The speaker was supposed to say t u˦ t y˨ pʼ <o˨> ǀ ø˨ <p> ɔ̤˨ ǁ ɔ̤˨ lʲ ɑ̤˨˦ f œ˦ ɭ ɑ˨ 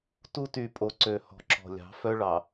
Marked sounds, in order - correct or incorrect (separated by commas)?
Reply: correct, incorrect